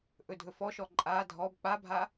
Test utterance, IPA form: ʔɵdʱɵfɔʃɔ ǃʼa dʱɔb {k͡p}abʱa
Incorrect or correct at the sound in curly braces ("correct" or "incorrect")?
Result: correct